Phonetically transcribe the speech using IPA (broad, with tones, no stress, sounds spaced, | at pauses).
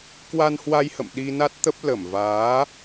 k w a˧ n h w a˧ j h ə̰˧˨ m ɗ i˧ n a˦˥ t̚ t̪ ə˦˥ p̚ l ə˧˩ m v aː˨˦